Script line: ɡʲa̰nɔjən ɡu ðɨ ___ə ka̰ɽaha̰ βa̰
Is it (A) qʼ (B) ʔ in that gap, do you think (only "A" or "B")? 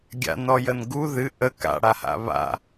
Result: B